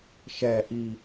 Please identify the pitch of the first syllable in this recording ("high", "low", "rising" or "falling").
low